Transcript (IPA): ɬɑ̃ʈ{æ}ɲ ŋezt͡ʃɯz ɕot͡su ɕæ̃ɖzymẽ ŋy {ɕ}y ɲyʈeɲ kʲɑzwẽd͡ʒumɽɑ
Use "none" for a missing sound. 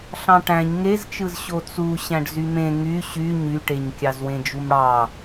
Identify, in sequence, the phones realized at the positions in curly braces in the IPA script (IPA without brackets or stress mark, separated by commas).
æ̃, ɕ